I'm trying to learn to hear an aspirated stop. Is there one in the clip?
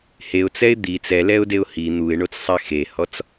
no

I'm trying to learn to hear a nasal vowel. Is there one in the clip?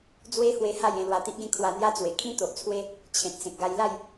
yes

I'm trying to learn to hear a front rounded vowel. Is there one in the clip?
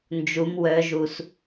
yes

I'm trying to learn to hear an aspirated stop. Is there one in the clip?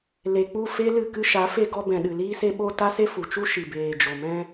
no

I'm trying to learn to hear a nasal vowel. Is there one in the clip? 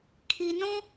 yes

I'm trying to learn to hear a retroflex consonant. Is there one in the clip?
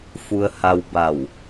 no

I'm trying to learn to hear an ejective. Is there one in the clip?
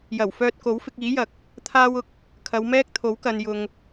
no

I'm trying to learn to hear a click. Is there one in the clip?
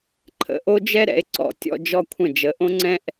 yes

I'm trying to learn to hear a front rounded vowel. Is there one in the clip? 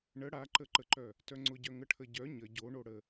yes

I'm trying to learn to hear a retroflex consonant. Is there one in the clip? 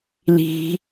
no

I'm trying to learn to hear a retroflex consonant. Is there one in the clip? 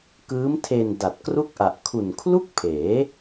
no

